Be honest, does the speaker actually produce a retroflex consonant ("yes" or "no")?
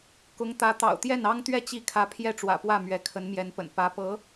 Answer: yes